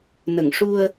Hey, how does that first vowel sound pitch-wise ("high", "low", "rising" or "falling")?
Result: low